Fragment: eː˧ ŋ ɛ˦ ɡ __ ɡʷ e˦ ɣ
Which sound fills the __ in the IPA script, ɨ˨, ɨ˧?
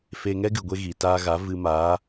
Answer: ɨ˨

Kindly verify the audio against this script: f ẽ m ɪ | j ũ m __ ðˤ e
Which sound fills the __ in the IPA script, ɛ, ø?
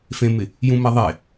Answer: ɛ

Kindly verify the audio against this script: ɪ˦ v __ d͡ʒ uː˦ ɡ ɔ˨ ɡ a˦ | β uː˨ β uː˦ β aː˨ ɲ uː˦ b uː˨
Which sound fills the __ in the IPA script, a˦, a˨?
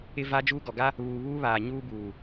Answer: a˦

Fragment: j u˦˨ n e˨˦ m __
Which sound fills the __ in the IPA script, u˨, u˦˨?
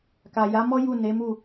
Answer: u˦˨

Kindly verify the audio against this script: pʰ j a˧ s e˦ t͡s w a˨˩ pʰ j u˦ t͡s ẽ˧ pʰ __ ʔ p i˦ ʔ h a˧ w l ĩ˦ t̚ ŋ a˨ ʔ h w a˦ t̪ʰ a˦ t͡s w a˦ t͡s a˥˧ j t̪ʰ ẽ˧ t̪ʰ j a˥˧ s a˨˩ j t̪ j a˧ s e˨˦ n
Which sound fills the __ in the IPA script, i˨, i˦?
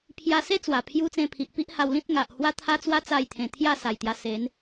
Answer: i˨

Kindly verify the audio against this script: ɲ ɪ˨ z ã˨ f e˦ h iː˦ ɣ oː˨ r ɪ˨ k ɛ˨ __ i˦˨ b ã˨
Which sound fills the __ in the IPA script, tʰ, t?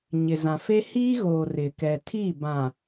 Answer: tʰ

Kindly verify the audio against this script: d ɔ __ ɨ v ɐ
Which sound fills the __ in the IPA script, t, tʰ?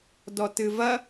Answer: t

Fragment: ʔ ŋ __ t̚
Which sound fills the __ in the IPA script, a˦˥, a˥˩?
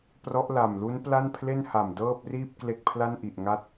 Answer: a˦˥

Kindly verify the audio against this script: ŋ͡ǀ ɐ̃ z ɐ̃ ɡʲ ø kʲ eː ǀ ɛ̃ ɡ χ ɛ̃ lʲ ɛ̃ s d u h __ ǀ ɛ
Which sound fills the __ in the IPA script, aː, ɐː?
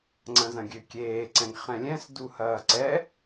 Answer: ɐː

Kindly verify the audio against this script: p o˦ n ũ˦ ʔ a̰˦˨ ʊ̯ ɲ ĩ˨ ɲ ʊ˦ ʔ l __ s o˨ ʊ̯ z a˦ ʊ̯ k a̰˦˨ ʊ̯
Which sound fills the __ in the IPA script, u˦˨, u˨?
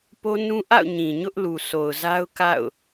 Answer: u˨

